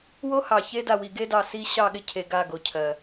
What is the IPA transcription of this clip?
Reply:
wo˦hɑ˨çe˦ da˨wi˨ɡe˦dɑ˨ si˦ ɕɑ˦˨ɠɪ˦cʰe˨ ɡa˦˨ɡo˨cʰɜ˨

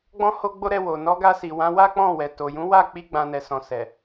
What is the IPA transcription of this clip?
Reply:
ɡ͡bɔ̃˦ ho˦ɡ͡bo˦ ɾɛ˧ wo˨ nɔ˨˦ɡa˧si˨wã˨˦ wa˦k͡pɔ̃˦˨ wɛ˨ to˨jũ˨˦wa˦˨k͡pi˧ ɡ͡bã˦nɛ˧sɔ̃˧ sɛ˨

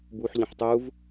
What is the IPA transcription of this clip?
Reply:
buħʎə̃ħ tˤuv

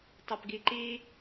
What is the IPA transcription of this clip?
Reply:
tˤopɡiǃi

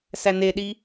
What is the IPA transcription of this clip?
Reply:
sæneɗi

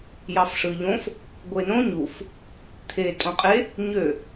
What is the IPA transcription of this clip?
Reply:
jɑfʂɯʎõf | ɡʷenõ ɲuf | t̪ʰe tʼõqʼe | ɲø

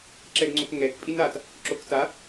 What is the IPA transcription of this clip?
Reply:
ǁɛɡŋ͡ǀokŋɛk pʼinat | ǁokta

